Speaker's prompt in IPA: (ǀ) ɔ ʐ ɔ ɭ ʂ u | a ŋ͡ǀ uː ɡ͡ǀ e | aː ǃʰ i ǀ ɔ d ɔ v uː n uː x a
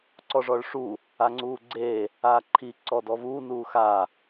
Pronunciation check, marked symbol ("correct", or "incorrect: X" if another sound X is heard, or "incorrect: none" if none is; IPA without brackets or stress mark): correct